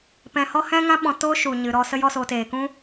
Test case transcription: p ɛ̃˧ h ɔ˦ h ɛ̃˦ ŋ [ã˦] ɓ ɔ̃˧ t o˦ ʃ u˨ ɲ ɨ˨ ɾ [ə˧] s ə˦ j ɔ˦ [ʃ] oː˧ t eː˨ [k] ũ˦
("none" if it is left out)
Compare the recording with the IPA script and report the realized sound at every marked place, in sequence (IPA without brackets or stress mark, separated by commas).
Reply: ã˦, ɔ˧, s, k